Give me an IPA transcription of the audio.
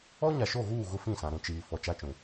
ɔ˦ ɲ a˨ ʃ o˦˨ ɣ uː˦˨ ɣ ʊ˦ f ĩ˦˨ s ã˨ ɾ ũ˨ t͡ʃ iː˨ f ɔ˨ t͡ʃ a˦ t͡ʃ ũ˨

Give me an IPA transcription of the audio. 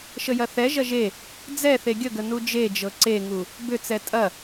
ʃ ə j ɐ θ ɛ ʒ ɐ ʒ e | d͡z ɛ θ e ɡʲ ə ɡ ə n u d͡ʒ e d͡ʒ ɤ ǀ e ŋ u | b ʏ t͡s ɛ tʼ ɐ

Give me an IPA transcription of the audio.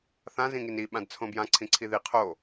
θ ã z ĩ ŋ i n i ɓ ã d t͡sʰ õ b j ã ǀʰ ĩ ǀʰ i ð i qʰ o

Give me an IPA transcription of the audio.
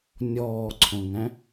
nʲ ɔː ǀʰ õ ŋ æ̃

